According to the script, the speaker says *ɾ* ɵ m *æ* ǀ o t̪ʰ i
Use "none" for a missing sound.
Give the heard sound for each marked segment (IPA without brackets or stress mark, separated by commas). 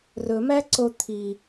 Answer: r, æ